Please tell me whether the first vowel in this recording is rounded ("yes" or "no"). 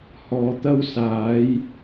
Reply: yes